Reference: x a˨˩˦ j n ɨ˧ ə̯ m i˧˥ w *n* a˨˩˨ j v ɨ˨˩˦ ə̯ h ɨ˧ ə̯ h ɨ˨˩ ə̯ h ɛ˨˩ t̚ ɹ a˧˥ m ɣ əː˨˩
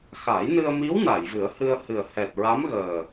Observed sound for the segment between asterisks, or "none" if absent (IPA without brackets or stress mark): n